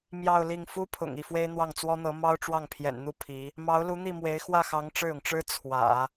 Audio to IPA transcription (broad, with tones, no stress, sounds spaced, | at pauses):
m j ɑ˥˧ ʊ̯ l i˥˩ ŋ f u˥ pʰ ʊ̰˨˩ ŋ i˥˩ f w e˥ ɪ̯ n̪ w ɑ˥˩ ŋ t͡s w ɔ˥ n̪ ɤ˧˥ m ɑ˥ ʊ̯ ʈ͡ʂ w ɑ˥˩ ŋ pʰ j ɛ̰˨˩ n n̪ u˥˩ pʰ i˧˥ | m ɑ˧˥ ʊ̯ l u˧˥ n̪ i˥˩ m w e˧˥ ɪ̯ x w ä˥˩ x ɑ˧˥ ŋ ʈ͡ʂ ɻ̩˥˩ ʊ˩ ŋ ʈ͡ʂ ɻ̩˥ t͡sʰ w ä̰˨˩˦